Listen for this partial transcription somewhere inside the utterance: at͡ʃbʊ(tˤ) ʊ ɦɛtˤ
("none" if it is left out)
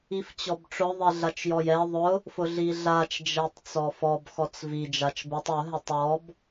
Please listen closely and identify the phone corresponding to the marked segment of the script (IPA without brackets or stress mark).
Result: tˤ